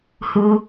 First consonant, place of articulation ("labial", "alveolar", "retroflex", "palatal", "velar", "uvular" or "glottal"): glottal